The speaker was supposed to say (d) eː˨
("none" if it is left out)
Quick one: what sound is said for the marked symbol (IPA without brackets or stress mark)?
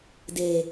d